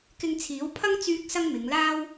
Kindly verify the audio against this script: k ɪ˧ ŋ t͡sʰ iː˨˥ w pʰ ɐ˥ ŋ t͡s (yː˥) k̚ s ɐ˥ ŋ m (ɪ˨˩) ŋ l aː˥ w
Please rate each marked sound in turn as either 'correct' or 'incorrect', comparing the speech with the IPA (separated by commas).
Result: correct, incorrect